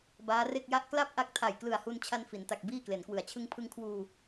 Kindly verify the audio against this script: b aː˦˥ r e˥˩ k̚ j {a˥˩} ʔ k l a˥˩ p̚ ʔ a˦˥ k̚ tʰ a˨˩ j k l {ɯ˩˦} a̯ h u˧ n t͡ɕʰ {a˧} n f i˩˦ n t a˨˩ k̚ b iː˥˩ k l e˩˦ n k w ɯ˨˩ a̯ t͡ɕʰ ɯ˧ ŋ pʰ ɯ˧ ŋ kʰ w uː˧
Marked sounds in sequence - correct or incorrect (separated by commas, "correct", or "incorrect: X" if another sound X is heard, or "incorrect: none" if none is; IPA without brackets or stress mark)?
correct, incorrect: ɯ˨˩, correct